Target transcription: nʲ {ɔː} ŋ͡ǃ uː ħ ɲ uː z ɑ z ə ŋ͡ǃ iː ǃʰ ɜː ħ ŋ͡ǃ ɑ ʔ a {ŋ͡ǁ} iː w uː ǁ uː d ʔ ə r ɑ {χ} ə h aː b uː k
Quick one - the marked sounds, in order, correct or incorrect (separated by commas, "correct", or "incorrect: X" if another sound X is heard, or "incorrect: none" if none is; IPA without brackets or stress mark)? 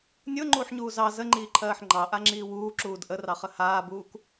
incorrect: ʊː, correct, correct